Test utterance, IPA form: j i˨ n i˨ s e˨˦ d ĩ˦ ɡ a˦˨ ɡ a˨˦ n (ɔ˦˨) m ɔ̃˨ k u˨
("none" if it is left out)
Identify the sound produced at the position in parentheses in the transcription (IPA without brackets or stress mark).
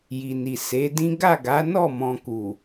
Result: ɔ˦˨